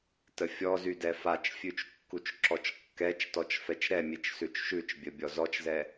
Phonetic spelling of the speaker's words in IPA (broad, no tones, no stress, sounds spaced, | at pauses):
t ə fʲ ɔ z y d ɛ f a t͡ʃ fʲ ʉ t͡ʃ kː u t͡ʃ ǁ ɔ t͡ʃ kː ɛ t͡ʃ t ɔ t͡ʃ f ɛ t͡ʃ ɾ ɛ mʲ e t͡ʃ s ʉ t͡ʃ ʃ ʉ t͡ʃ bʲ ə bʲ ɔ z ɔ t͡ʃ z ɛ